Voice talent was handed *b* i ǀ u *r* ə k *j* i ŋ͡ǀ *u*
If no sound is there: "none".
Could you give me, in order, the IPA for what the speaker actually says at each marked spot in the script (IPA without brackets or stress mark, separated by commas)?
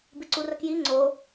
b, r, j, o